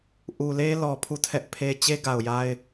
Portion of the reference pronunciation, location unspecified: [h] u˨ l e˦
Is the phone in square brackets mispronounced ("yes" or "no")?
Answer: yes